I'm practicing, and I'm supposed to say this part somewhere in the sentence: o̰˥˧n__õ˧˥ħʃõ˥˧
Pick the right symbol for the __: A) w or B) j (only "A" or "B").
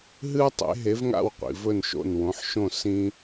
A